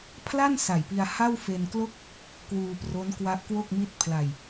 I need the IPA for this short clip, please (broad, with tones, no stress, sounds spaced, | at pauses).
pʰ l a˥˩ n s a˨˩ j p i˧ a̯ h a˥˩ w f e˧ n k l o˥˩ k̚ | k w uː˧ p r o˦˥ n k w a˦˥ ʔ k w o˥˩ k̚ m i˥˩ t̚ pʰ l a˧ j